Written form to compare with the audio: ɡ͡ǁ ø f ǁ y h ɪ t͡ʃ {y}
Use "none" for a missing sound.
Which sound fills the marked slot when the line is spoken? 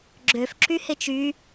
y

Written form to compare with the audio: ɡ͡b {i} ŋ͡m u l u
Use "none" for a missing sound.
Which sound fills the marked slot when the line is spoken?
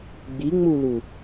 i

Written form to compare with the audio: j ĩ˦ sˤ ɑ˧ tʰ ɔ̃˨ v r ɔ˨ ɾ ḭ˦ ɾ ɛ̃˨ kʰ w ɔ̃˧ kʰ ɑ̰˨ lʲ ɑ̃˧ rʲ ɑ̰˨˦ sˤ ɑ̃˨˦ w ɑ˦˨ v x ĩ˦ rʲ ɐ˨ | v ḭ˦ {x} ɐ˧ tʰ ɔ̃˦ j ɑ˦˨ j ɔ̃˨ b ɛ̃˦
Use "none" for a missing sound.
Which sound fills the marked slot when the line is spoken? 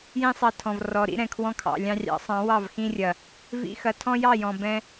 x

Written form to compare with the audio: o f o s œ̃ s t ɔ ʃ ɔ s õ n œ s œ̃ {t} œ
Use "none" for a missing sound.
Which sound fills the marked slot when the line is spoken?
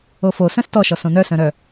ɾ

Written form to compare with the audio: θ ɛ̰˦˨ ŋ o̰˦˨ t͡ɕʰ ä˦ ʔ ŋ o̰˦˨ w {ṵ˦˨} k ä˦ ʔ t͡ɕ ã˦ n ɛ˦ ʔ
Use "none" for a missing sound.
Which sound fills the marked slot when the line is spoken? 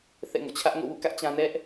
ṵ˦˨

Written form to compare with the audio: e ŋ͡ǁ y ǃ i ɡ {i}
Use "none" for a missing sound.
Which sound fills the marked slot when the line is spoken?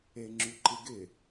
ɪ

